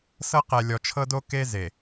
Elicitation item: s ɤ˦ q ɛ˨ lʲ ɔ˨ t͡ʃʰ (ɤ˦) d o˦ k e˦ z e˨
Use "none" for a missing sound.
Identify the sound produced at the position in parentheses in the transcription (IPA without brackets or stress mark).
ɤ˦